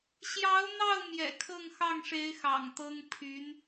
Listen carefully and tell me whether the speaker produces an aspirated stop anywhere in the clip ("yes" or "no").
yes